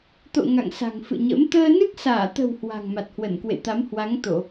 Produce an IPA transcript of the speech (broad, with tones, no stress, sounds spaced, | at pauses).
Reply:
t̪ o̰˧˨ ŋ a̰˧˨ ŋ s a̤˨˩ ŋ f ɨ̰˧˨ ɲ ə̰˧˥ m t̪ əː˧ n ɨ˦˥ k̚ s aː˧˩ t̪ ə̤˨˩ w h w a̤˨˩ ŋ m a˨˩ t̚ h w ə˧˩ n k w ḛ˧˨ t̪ a˨˦ m h w a˨˦ ŋ t̪ o˧˩˨